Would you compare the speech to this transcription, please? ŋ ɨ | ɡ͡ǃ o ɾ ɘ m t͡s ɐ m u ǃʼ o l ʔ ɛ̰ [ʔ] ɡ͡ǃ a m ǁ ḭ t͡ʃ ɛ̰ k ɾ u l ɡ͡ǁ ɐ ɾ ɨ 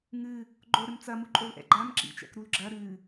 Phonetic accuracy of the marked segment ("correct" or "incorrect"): incorrect